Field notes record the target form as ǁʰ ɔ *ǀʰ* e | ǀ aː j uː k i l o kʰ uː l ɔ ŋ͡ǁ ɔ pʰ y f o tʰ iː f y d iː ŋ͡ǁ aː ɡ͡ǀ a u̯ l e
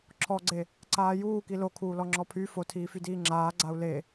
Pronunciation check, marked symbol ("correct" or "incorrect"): incorrect